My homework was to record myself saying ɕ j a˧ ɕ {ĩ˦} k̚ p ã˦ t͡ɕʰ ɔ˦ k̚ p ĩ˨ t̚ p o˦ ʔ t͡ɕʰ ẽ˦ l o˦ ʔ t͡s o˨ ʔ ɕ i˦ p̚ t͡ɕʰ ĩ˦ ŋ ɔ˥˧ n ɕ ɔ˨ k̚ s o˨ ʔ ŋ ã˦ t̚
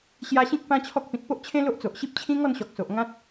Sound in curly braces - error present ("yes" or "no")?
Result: no